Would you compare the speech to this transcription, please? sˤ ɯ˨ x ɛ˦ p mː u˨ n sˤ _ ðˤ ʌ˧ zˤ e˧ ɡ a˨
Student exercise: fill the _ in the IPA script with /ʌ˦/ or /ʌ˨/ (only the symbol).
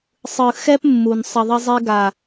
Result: ʌ˨